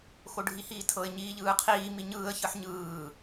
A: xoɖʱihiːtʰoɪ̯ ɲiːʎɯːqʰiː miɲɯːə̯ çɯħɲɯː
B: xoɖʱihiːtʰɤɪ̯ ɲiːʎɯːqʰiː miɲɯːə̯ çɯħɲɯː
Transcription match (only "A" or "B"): B